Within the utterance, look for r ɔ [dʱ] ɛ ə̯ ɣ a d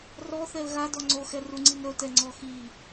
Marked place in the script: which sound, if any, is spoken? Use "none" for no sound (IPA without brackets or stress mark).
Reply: θ